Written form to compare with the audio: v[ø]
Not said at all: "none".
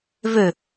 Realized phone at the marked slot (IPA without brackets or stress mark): ø